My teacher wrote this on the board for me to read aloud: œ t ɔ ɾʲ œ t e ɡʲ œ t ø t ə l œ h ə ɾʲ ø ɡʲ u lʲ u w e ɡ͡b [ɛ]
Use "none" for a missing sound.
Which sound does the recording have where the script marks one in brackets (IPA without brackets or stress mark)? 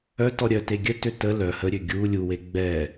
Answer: ɛ